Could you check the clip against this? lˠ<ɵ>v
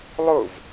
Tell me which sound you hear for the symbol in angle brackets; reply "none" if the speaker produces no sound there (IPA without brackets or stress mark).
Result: ʊ